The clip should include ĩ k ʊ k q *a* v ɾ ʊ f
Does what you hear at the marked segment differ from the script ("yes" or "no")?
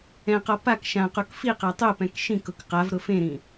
no